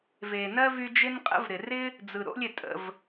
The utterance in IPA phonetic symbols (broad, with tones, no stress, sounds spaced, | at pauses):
v e˩ n ɜ˥ v y˦ d͡ʒ ɪ˥ n qʼ ə̰˥ v ɾ ɪ˨ r ɪ˥ | d͡z ɯ˩ ɾ o̰˦ lʲ ɪ˩ tʼ ə̰˨ v